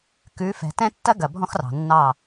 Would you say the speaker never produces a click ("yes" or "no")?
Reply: yes